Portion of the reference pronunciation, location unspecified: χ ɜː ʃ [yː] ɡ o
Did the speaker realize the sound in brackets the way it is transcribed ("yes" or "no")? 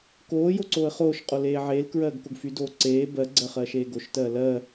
no